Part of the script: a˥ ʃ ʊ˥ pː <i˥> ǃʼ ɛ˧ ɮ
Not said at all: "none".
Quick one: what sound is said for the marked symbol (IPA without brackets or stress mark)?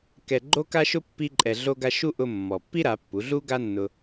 i˥